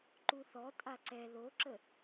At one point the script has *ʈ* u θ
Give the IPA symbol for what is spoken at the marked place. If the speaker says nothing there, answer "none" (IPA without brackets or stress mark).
ǃ